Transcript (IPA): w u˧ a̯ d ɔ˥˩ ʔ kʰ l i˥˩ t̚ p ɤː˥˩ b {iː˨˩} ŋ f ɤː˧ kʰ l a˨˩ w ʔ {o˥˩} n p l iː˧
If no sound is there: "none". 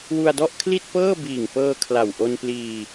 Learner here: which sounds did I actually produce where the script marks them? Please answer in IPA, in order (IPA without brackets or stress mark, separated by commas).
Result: iː˨˩, o˧